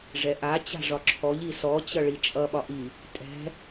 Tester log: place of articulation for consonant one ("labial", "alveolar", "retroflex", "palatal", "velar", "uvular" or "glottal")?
retroflex